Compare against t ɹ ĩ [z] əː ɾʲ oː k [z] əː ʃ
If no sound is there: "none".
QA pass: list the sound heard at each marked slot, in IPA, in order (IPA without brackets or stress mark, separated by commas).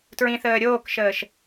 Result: θ, ʃ